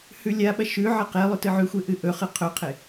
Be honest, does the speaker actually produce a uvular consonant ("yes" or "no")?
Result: yes